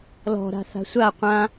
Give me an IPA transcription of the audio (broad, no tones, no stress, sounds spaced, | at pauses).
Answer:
l ɔ̤ ɾ a̤ θ a̤ sʷ a qʷ ã